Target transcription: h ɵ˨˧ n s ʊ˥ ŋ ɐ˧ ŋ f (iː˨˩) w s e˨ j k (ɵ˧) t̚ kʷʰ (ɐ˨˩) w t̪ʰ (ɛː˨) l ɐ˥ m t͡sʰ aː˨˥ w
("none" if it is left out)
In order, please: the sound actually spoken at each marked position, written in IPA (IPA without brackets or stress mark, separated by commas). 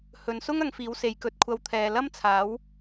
iː˨˥, ɵ˧, ɐ˧, ɛː˨